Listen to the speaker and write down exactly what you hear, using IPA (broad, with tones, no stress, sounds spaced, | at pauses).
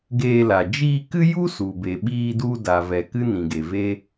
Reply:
ɡ eː˧ l a˨ d͡ʒ iː˧ k ɨ˦ j u˦ s u˨ b e˨ ɓ iː˧ d u˧ d a˨ v ɛ˨ k ɨ˦ n ĩ˨ ɡ e˨ v e˦